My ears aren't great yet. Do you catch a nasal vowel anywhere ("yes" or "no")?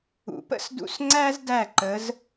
no